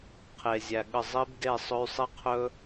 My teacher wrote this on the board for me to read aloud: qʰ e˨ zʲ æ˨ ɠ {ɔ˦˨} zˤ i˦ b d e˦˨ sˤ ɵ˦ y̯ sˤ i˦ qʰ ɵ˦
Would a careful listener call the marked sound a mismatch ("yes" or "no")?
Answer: yes